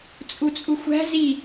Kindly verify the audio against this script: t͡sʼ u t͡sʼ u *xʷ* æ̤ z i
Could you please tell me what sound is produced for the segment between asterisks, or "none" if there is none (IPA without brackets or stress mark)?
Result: xʷ